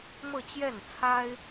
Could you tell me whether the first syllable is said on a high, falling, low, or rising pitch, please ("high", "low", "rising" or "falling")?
falling